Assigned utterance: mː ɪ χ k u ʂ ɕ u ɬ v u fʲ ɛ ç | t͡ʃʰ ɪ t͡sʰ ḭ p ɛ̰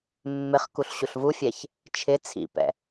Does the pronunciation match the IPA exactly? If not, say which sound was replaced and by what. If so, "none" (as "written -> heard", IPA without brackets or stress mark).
ʂ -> ɬ